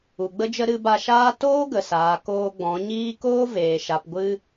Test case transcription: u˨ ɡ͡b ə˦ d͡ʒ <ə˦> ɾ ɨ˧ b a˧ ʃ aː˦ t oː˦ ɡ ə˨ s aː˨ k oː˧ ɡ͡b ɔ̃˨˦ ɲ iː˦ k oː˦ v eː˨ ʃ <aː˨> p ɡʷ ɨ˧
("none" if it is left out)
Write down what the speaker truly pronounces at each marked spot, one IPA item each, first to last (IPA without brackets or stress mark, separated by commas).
ə˦, a˨